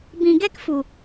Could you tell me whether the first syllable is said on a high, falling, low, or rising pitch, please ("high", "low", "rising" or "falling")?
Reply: low